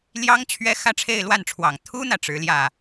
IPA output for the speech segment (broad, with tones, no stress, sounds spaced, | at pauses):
l j ɑ˥ ŋ t͡ɕʰ ɥ ɛ˥ x ä˥ ʈ͡ʂʰ e˥˧ ɪ̯ l w a˥˩ n ʈ͡ʂʰ w ɑ˨˩ ŋ t̪ʰ u˥ n̪ ä˨ ʈ͡ʂ ɻ̩˧˥ l j ä˥˩